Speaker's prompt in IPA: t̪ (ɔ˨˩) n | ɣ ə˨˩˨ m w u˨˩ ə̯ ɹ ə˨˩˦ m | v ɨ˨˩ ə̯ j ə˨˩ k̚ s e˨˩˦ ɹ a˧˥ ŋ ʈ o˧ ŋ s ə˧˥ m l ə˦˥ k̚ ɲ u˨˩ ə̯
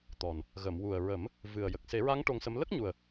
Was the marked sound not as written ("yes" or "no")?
no